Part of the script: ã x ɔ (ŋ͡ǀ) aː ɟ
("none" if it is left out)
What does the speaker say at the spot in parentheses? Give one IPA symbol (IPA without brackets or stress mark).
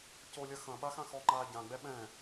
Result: ŋ͡ǃ